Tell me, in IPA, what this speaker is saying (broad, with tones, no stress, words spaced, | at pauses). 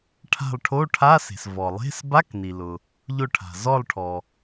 ʈʰa̤˦˨lˠʈʰo˧˥˧ʈʰa˧˥˧ se̤˩svɔ˩lˠe̤˧˥˧s ba˧˥˧kni˩lʊ˩ | ʎʊ˦˨ ʈʰa̤˩zɔ˦˨lˠʈʰɔ˩